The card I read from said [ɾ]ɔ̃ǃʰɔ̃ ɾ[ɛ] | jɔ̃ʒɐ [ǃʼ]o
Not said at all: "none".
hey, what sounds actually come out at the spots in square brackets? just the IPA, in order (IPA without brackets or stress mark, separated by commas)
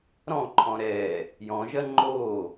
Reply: ɾ, ɛ, ŋ͡ǃ